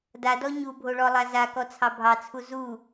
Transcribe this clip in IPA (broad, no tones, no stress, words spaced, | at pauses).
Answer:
dadɔ ɲubʱoɭɔlˠa zakɔt͡sʰɑ bʱɑt͡sʰu zu